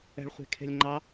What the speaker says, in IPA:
ɛ̤ ɭ χʷ e̤ kʰ e̤ lʲ ŋ͡ǃ ɑ

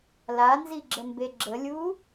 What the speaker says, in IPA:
l a n z i ɡ͡ǁ ə m b e ɡ͡ǁ ə lʲ u

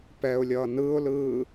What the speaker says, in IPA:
p ɛ ʊ̯ lʲ ʌː n ɯː ʊ̯ l ɯː

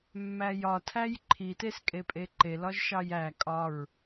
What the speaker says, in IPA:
mː æ j ɒ tʰ æ j ǃʰ i t e s kʼ e pʼ e ǃ e l ɒ ʒ ʃ ɑ j æ kʼ ɒ ɹ

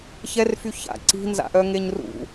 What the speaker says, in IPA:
ç ɛ r f y ç a̰ ǀ i̤ n z a̰ ʔ œ ŋ e ɲ r ṵ

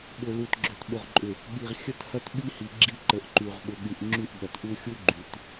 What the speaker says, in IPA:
ɓ ʊ˨ l u˨ t ɡ͡ǁ ʏ˨ t ɓ ʊ˨ ʁ ǃʼ ʏ˨ | ɠ i˨ ʁ xʲ ə˦ t h ɐ˦ t ɓ i˦ h i˨ ɡ͡ǁ i˦ ǃ ə˨ ʔ ǃ y˨ ʁ ɓ ʊ˨ ɠ y˨ ʔ ŋ͡ǁ y˦˨ ʔ ɠ ɐ˨ t ʔ u˦ xʲ u˦ ɡ͡ǃ y˨ t

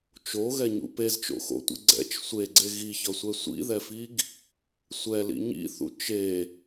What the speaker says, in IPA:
t͡ʃ o ɣ ɛ ɲ ṵ p e z t͡ʃ o̰ x o̰ tʷ ḭ ɡ͡ǀ ɛ̰ t͡ʃ sʷ e ɡ͡ǀ e ɣ i ç ʌ sʷ ɛ sʷ ḭ ð ɛ f i ɡ | sʷ ɛ l ḭ ɲ ḭ θ ṵ t͡ʃ e

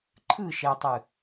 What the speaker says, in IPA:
ǃʰ ɯ ʃ ɛ tˤ ɯ

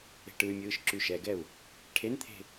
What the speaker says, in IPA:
e̤ ʈ ɯ y̯ mʲ ɯː ʃ ǁ y ʃ ɛ ɡ ɛ u̯ | ʈʰ e n t̪ʰ e̤

